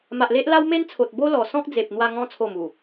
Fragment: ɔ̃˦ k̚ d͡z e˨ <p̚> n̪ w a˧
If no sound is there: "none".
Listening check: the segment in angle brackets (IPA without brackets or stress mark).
p̚